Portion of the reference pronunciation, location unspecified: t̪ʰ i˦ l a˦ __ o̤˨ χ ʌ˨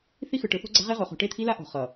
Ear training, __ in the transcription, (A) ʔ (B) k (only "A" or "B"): A